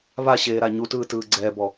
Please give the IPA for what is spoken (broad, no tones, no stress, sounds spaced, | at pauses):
β a ɕ eː ɾ a ɲ u t ɯː t ɯː ɡ͡ǀ ɛː b ɔ